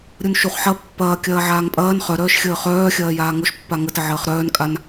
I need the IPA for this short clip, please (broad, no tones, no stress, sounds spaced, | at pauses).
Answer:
ɾʲ u n ʃ u χ ħ ɐ pː ɐː kʲ ɐː ʕ aː ŋ pʼ ɐː n χ œ ɾ œː ʃ xʲ əː χ œː xʲ ɐː j aː ŋ o ʃ pː a ŋ ə t ə ʕ əː χ ɾ œː n kʼ a n